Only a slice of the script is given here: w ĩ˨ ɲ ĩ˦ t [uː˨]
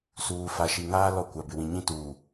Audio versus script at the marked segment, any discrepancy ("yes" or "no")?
no